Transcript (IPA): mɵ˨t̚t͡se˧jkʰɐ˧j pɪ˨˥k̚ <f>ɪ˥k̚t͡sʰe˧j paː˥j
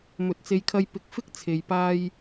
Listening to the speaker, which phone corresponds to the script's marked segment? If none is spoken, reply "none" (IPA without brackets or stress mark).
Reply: f